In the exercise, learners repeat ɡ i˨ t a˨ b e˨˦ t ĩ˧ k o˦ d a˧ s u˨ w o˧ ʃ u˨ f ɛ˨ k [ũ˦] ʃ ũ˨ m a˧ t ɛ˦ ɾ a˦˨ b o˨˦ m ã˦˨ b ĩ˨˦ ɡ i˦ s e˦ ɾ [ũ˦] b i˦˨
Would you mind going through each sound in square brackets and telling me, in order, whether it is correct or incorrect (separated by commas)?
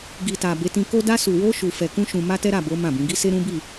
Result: incorrect, correct